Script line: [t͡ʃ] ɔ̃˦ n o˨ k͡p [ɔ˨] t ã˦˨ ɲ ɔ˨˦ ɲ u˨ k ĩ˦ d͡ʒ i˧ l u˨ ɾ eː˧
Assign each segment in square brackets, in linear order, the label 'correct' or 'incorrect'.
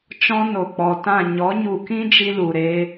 correct, correct

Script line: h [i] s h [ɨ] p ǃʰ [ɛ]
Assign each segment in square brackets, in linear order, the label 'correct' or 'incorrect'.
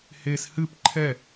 incorrect: e, correct, correct

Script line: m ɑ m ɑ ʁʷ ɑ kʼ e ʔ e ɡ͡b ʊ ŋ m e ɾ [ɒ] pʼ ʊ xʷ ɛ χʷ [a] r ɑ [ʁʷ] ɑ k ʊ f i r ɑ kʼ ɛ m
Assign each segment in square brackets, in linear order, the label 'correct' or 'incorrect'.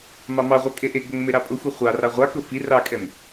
incorrect: ɑ, incorrect: ɑ, correct

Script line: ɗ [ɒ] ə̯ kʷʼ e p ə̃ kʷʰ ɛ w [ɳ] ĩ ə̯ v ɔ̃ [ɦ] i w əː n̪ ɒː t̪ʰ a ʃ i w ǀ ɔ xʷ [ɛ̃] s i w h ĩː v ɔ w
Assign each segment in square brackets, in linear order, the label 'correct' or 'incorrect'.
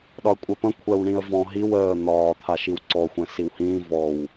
correct, correct, correct, correct

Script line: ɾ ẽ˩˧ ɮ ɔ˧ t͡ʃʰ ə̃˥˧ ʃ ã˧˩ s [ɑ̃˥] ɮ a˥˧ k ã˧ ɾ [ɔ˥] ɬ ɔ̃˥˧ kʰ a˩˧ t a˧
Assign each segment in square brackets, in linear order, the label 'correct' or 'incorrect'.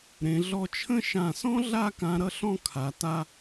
incorrect: ɔ̃˥, incorrect: ʌ˥

